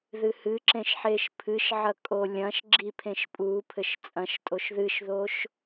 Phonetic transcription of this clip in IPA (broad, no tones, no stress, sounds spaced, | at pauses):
ð ɨ h ɨ ǁ ẽ ʃ ħ e ʃ pʰ ɨ ʃ ʕ ɐ kʼ o lʲ ɐ̃ ʃ ɡ͡ǁ i pʰ ẽ ʃ pʼ u pʰ ɘ ʃ t͡sʼ ɐ̃ ʃ tʼ o ʃ ð ɨ ʃ ð o ʃ